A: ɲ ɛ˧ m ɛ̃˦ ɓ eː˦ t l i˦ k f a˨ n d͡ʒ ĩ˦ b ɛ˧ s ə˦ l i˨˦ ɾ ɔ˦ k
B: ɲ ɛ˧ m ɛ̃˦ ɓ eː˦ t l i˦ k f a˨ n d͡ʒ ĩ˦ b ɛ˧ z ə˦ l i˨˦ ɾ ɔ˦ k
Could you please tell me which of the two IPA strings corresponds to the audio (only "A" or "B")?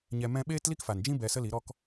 A